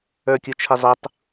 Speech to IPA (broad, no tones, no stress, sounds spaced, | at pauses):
ə˞ kʲ u t͡ʃʰ ɪ zˤ ʊ tˤ